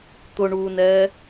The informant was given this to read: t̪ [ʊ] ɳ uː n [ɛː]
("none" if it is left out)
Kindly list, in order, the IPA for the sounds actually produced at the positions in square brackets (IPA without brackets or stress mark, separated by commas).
ʊ, ɛː